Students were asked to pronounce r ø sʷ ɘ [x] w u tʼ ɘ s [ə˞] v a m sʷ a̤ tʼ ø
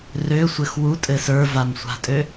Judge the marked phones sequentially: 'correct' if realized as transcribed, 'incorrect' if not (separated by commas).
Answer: correct, correct